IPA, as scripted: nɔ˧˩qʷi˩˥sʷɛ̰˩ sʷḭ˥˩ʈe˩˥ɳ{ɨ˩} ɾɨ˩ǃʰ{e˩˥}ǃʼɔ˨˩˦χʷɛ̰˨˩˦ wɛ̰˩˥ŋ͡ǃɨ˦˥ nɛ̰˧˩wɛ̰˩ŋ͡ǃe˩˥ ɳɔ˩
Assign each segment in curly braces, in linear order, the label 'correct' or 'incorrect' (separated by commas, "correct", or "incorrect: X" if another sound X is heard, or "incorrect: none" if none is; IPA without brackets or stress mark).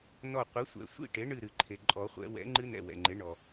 incorrect: ɨ˧˩, incorrect: e˩